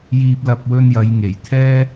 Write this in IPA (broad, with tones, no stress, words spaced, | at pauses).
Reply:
jiː˧p̚lɐ˧p̚ wɵ˧njɐ˨˧j ŋe˨˩j t̪ʰɛː˥